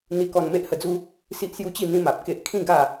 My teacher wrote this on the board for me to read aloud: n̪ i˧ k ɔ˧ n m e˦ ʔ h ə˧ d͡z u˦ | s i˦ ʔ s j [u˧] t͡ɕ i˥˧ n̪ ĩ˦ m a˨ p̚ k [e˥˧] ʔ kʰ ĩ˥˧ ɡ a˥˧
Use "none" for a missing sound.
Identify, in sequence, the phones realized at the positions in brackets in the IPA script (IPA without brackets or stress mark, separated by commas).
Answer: u˦, e˦